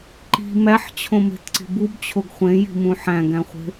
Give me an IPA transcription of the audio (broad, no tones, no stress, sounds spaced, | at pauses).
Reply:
ǃ i̤ m æ ħ t͡ɕʰ õ m e̤ t ǀ i̤ b u b t͡ɕʰ o ɡ χʷ ẽ j i̤ m ũ ħ æ̃ ɡ æ̃ χʷ e̤